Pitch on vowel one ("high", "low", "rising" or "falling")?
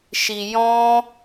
low